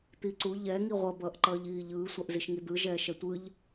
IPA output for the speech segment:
t̪ i ǀ u ʎ ɛ ŋ i ʁʷ ʌ b ʌː ʔ ǃ ʌː ʎ iː ʎ ɯː sʷ a ʔ z i ʃ ŋ i d̪ ɯ ʒ ɛː ʃ ɛ tʷ ɯ ʎ

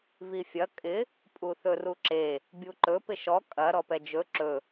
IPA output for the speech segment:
v i fʲ ɐ kʼ ɪ | pʼ u θ ɵ r u ǁ e | bʲ u ǃ ɵ p ɪ ʃ ɔ kʼ ɐ ɾ ɔ p ɛ d͡ʒ ɵ ǁ ɵ

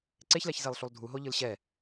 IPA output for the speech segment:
ǀ e ç l ɛ ç z e lˠ ɬ u lˠ dʱ u ɦ o ʎ ɯ l ɕ ɛ

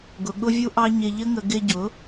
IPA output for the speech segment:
ɡ ʊ˨ ɠ ʊ˧ vʲ u˧ ʔ ɑ˧ ɲ ɪ˧ ʎ ə˦ ŋ ə˧ ɡ ɪ˧ ɟ ʊ˨˦

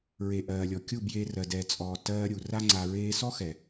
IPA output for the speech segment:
ɹ e˧ ʔ ɜː˨ lʲ ɔ˨ kʲ u˦˨ b j eː˧ r ɜ˨ d ɛ˨ t͡sʼ ɔː˨ t ɜː˧ ɾʲ u˨ r a˦ ŋ͡ǀ a˨ ɹ eː˧ s ɔ˦ x ɛ˨

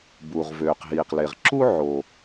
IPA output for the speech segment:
b uː˩ ʁ v øː˩ q ɦ iː˩ q l e˩ ʁ ǁ u˥ ʕ o˩

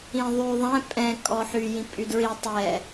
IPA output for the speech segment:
ĩ ðˤ y ðˤ ɛ̃ pʼ ɛ̃ kʼ ɔ ħ y j ĩ pʼ y d ɹ i tˤ ɛ

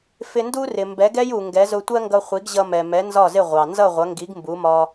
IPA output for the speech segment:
f ɪ˧ n d u˥ r ɪ˩ m b ɛ˩˥ ɡ ɛ˥ j u˩ ŋ ɡ ɛ˩˥ z ʊ˧ tʷ ɜ˥ ŋ ɡ ʌ˧ χʷ i˩˥ ɡ ʑ ʌ˧ m ɛ˩ m ɛ˩˥ n z ɒ˥˩ z ɪ˥˩ ʁʷ ɑ˩ n z ʌ˥˩ ʁʷ ʌ˩˥ ŋ ɡ i˩˥ ɡ m b u˩˥ m ɒ˧

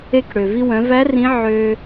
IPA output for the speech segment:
e˧ k ɽ ø˩ v i˧ w œ̃˩˧ v æ˧˥ r ĩ˧˥ ʕ ø˧

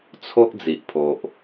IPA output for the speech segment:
t͡sʰ o˦ ʔ d͡z i˨ ʔ pʰ o˨ ʔ

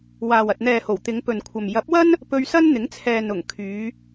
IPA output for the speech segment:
w aː˨ w ɐ˨ t̚ n̪ ɛː˨ h o˨˩ w t̪ ɪ˨˧ ŋ p ɵ˨ n kʷʰ ɐ˨ m j ɐ˨˥ p̚ w ɐ˥ n | p ɵ˧ ɥ s ɐ˥ n n̪ ɪ˨˥ ŋ t͡sʰ ɛː˨ n ʊ˨˩ ŋ kʰ yː˨˧

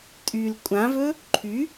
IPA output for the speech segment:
tʼ y l kʷʼ ã v ɵ | ǃʰ y

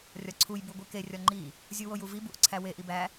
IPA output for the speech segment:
rʲ ɒ ǀʰ u j b u ɡʷ i k e rʲ ɒ ŋ͡ǃ i | zʲ u w o j u v i b u ʔ ǀʰ æ w e ʔ i b æ

